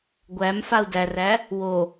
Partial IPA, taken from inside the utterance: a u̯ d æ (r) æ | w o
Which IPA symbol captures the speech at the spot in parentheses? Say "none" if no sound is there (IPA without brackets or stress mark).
r